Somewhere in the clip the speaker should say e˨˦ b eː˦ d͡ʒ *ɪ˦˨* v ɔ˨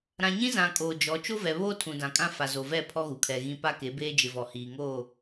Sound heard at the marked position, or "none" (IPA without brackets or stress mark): ɪ˨